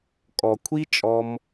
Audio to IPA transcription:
kʼ ɔ˨ kʷʰ i˦ t͡ʃʼ ɔ˦ m

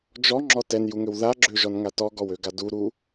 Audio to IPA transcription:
d͡ʒ ɔ ŋ͡ǁ ɔ t ɛ n j u ŋ ø w ð a ɡ͡ǁ ø ʒ ɔ n ŋ a t ɔ ɡ ɔ w ø ɡ a d u ɾ u

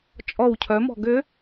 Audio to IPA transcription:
t͡ʃʼ ɔ w cʰ œ m ɔ̤ ɡ ʏ

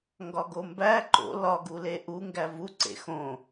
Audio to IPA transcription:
ŋ ɡ ɒ ɡ o m b æ ǃ o̰ l ɒ ɡ u l e ʔ u ŋ ɡ æ v u ǀ ḛ x õ

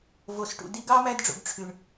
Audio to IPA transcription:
v o˨ s ʈ ṵ˨ d i˧ ɡ ɑ˦ m æ˧ d ɖ͡ʐ o̰˨ ɡ ʈ͡ʂʰ y˨ ɳ

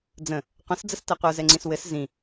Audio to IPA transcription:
d͡z ə̃ | qʷ ə̃ s d͡z ə s t ɛ qʷ ə˞ z ɛ ŋ͡ǀ ĩ s w ɘ s z ĩ

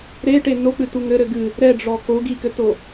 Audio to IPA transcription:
ɾ e ʈ e n o k͡p ɨ t u ŋ ɘ ɾ ɘ ɡ ɨ | ɾ ɛ ɖ͡ʐ ɔ k o ɡ i k ɘ t o

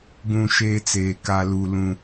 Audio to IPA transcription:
ɡ ũ˨ ʃ eː˦ t͡s eː˨ k a˦ l u˦ l ũ˦

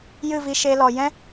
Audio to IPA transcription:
j ɨ˦˨ v i˧ ʃ e˧ l ɔ˨ j ɛ̃˦

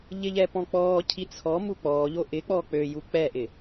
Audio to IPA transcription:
ʎ ɪ ʎ ɛ p ɔ̃ k͡p ɔː cʰ i t͡sʰ ɔ m u k͡p ɔː ʎ o ʔ ɪ k͡p ɔː k͡p ø j u k͡p ɛ ʔ ɪ

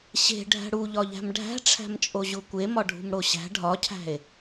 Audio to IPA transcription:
ɕ e̤ ɖʱ æ̤ ɽ u ʎ ɒ ʎ æ̤ m ɖʱ æ̤ ʈ͡ʂʰ æ̤ m t͡ʃʼ o ʑ u kʷ e m ɒ ɖʱ ṳ m ɽ o ɕ æ̤ ɖʱ ɒ cʰ æ̤ e̯

